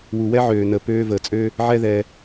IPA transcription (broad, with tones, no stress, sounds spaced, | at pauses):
w u˨ w ɛ˦ ʕ øː˨ n ə˨ p øː˧ v əː˨ t͡sʼ ø˦ | ʕ ɛ˦ ð ɛ˧